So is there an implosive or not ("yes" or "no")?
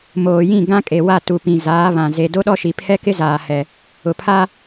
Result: yes